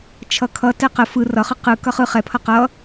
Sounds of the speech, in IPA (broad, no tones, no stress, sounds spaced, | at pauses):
t͡ʃʰ ʌ kʰ ʌ t ɛ q ə f ɯ r ʌ χ ɯ q ɯ k ʌ χ ɯ χ ɛ pʰ ʌ q ʌ